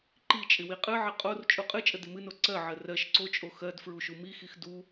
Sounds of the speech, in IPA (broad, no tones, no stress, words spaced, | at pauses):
ǃi t͡ʃʼɪwiqʼɨʕɪ qʼor t͡ʃʼuqʼɨt͡ʃʼə dɪmɨno ǀɜʕɜ rɜʃ ǀot͡ʃʼo xɜd fɹuʃumixix du